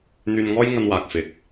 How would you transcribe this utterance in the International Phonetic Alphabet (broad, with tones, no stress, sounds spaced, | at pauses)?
n̪ yː˧ n ŋ ɔː˥ j ŋ ɐ˧ n w aː˨ k̚ f ɪ˨˥ k̚